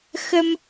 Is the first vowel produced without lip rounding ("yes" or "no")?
yes